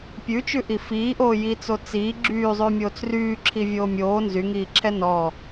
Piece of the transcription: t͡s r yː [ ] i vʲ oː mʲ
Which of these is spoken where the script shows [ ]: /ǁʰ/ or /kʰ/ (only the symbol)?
ǁʰ